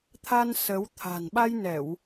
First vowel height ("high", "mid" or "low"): low